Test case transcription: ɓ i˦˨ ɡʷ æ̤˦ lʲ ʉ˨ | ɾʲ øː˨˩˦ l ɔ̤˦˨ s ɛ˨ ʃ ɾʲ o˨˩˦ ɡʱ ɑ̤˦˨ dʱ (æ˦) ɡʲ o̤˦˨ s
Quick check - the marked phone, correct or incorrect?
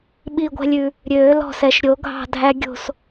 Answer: correct